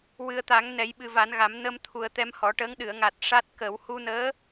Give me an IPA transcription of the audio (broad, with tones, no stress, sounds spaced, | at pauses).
w ɨ˨˩ ə̯ t̪ a˨˩˦ ŋ n ɛ˨˩˦ j ɓ ɨ˨˩ v a˨˩˦ n ɣ a˨˩˦ m n ə˧ m t̪ʰ u˨˩ ə̯ t̪ ɛ˧ m h ɔ˨˩˦ ʈ əː˧˥ ŋ ɗ ɨ˨˩˨ ə̯ ŋ a˨˩ t̚ ʂ a˦˥ t̚ k ə˨˩˦ w h u˧ n əː˧˥